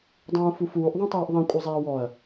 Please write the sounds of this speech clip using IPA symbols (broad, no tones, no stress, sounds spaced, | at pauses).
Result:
dˤ ũː f u f uː ʔ ðˤ ẽ tˤ eː ʔ ðˤ ẽ kʷʼ ɛ zˤ eː w ɔ ɐ̯